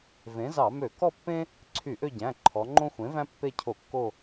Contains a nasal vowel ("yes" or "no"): yes